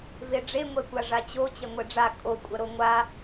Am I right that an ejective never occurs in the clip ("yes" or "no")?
no